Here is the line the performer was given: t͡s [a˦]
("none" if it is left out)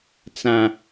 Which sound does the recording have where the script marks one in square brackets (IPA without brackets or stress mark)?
ã˦